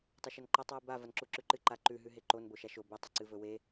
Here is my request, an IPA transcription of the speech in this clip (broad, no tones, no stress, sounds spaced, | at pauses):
tˤ ɐ ʃ ɐ n ǃ a tˤ w ʉ b a v ɐ n ǁ u ǁ ʉ ǃ ɨ ǃ a ǃ ʉ ɦ ʉ ɦ e ǃ o n b o ʃ a ʃ o b ɨ tˤ ɵ ǀ ɨ v ɵ w e